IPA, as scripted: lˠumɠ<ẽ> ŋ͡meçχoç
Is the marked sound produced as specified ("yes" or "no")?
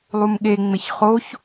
no